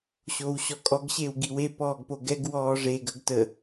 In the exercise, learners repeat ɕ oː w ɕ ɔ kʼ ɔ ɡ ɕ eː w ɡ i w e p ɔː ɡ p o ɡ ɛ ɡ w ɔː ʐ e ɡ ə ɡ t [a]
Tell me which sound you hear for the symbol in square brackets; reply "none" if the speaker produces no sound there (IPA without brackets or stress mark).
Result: ə